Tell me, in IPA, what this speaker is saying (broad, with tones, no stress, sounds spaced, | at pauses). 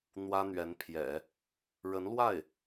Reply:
n̪ w ä˥ n̪ ɥ ɛ˧˥ n pʰ j ɛ̰˨˩˦ | ɻ ə˧˥ n l w a˥˩ ɪ̯